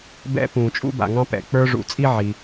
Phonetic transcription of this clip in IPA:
b ɛ̰˥ p ũː˩ t͡ʃʼ ṵ˥ b a̰˩ ŋ ɑ̃˥ p ɛ̰˩ k͡p ə˞˥ ʐ ṵ˩ t͡sʼ i˥ ʕ i˩

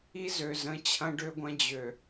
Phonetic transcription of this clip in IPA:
i˦ z ø˨ z ə̃˨˦ t͡ɕʰ ɐ̃˦ ɖ ø˦ ɡʷ ɐ̃˦ d͡ʑ ø˨

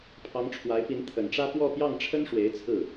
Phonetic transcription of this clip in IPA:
pʰ ɑ˧˥ ŋ ʈ͡ʂʰ w a˧˥ ɪ̯ p i˧˥ n t̪ʰ ə˨˩ n ʈ͡ʂ ä˥ p w ɔ˥˧ p j ɑ˥˩ ŋ ʈ͡ʂʰ ə˥ n ʂ w e˧˥ ɪ̯ t͡sʰ ɹ̩˥˩

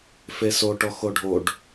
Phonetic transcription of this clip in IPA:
f e s o ʈ ɔ x o ɖʱ o ɖ

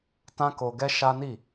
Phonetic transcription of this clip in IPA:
t ã˦ k o˧ ɡ ɛ˦ ʃ a˦ n i˦˨

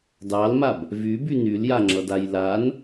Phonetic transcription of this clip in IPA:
d ɑ l m a b | v y b y n y l j a ŋ͡ǁ ʌ d a j l a n

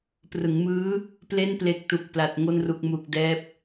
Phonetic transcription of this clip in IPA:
p r ɯ˩˦ ŋ m ɯː˦˥ | p l e˥˩ n p l e˨˩ k̚ t u˨˩ k̚ p l a˨˩ t̚ ŋ o˧ n r u˨˩ k̚ m u˨˩ k̚ d ɛː˦˥ p̚

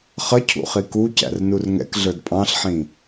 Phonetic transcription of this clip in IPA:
χ ʌ cʰ ṵ χ i k u c æ̰ r n u r ŋ ɛ̰ k ɮ ə˞ d pʼ ɑ̃ ɬ ħ ĩ

